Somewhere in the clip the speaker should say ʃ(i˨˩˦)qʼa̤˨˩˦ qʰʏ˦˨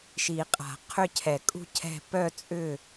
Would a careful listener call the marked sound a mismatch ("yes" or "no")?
no